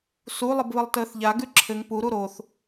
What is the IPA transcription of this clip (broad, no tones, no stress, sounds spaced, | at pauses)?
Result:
s u lˠ ə b β ə lˠ t əː θ ʎ a ɡ ʉ ǁʰ ɘ ŋ p u ɾ u ɾ o θ